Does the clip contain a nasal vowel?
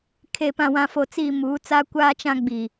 yes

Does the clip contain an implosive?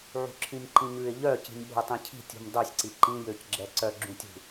yes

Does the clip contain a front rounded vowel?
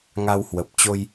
no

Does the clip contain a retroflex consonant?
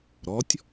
no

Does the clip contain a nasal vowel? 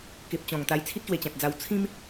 yes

